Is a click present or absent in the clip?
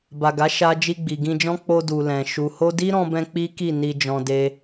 absent